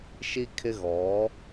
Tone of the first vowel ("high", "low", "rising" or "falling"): high